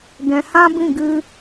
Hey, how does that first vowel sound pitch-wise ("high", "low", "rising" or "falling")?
low